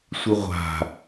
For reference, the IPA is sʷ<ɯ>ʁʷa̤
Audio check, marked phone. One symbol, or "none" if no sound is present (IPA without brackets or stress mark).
ɯ